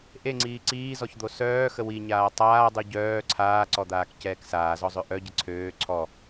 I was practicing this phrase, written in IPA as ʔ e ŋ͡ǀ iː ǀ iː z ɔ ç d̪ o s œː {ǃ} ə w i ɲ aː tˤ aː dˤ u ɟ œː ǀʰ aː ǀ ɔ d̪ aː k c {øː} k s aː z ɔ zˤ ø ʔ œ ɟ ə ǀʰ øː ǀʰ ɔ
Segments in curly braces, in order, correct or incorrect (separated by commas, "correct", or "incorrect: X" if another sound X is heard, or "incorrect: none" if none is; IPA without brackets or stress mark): incorrect: x, incorrect: ɛː